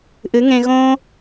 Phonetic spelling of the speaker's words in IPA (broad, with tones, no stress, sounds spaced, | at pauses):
ʔ ɨ˨˦ ŋ ẽ˧ ɣ õː˦